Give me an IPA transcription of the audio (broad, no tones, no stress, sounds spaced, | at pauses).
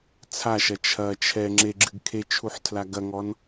t͡sʰ a ʃ ɐ t͡ʃʰ ɐ t͡ʃʰ ɛ ŋ͡ǁ e ɡ͡ǁ ɨ ɡ kʰ e t͡ʃʰ u ħ tʰ l a ɡ ɐ ŋ ɔ n